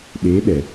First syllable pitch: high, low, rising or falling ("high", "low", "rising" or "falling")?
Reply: rising